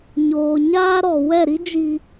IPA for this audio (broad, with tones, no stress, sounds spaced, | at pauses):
ɲ oː˨ ɲ aː˦ ɾ ɔ˨ w ɛ˦˨ ɾ i˦ d͡ʒ i˨